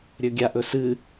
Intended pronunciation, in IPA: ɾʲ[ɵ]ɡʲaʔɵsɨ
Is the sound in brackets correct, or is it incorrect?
correct